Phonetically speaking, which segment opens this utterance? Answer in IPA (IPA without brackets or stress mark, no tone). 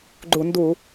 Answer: ɡ͡ǃ